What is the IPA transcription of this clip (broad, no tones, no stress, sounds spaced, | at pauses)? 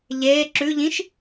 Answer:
ʎ eː ǁ ʉ ʎ ĩ ʃ